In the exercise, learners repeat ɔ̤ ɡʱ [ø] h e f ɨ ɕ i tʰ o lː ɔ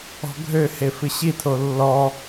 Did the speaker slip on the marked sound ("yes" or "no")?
no